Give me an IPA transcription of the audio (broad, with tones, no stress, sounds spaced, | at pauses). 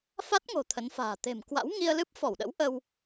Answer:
f a˦˥ t̚ ŋ o̤˨˩ t̪ʰ ə˨˦ n f a̤ː˨˩ t̪ e̤˨˩ m k w a̰˧˥ w ŋ i˧ ə̯ l ɨ˦˥ p̚ f ɔ˧˩ w ɗ ə̰˧˥ w ʔ ə˧ w